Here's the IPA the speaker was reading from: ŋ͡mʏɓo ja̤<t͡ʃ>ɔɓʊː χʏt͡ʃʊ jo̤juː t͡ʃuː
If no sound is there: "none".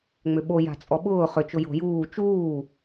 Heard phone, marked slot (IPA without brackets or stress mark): t͡sʼ